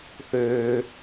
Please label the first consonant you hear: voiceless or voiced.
voiceless